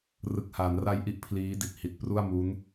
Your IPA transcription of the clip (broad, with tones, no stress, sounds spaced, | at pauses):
r ɯ˨˩ k̚ h aː˩˦ n r a˧ j ʔ i˥˩ ʔ pʰ l iː˦˥ d i˨˩ t̚ h i˨˩ t̚ p r u˥˩ a̯ m u˦˥ n